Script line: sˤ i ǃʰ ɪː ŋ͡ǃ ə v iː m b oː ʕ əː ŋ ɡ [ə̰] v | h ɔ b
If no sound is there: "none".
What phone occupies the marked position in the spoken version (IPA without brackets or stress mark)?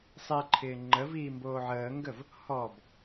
ə